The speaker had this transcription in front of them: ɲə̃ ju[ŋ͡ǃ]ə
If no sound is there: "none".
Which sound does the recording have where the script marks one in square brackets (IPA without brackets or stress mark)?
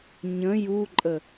ǃʼ